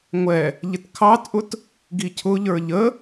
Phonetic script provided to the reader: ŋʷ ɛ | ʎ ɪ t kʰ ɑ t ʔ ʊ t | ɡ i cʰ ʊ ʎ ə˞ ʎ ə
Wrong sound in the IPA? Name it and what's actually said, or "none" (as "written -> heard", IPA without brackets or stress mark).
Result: none